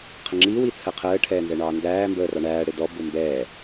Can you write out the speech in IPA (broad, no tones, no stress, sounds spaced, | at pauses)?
qʰ ə ŋ͡ǁ i w i t͡sʰ ɜ qʰ əː ʈʰ ɛː n z ɛ ɳ ɑː n d æː m b əː r ɑ ɳ æː ɽ ɪ d ɔ b ʊ m b ɛː